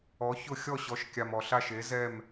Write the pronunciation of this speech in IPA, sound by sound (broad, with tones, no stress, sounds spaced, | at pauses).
ɔ˨˥ ç ʊ˥˨ xʲ ɔ˥˨ ɕ ɔ˨˥ ʃ kʲ a˨ m ɔ˨ ɬ a˥˨ ʃ e˨˥ z ɛ˥˨ m